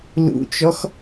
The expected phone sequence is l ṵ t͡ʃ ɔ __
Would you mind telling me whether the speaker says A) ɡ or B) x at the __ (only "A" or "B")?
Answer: B